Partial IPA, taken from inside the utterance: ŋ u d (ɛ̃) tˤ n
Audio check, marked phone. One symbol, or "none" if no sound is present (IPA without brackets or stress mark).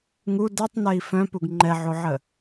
ɛ